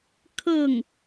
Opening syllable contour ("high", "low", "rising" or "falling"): falling